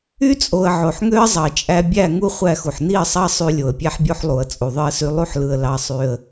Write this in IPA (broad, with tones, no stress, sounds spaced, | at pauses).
y˦ t͡sʼ o˨ ə̯ ʕ o˨ ħ ŋ ø˦ ə̯ zˤ ɑ˨ t͡ʃʼ æ˦ bʲ æ˦˨ ŋ u˦ χʷ æ˦˨ x u˨ ħ n i˦˨ ə̯ sˤ ɑ˦ sˤ y˦ lʲ o˨ ə̯ pʲ æ˦ ħ bʲ o˦ ħ lˠ u˨ ə̯ t͡sʼ u˨ ðˤ ɯ˦ ə̯ s y˦ lˠ u˦ ħ l ɯ˨ ə̯ l ɑ˦ sˤ y˦ ə̯